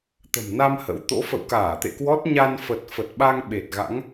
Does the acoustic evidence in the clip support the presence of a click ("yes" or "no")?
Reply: no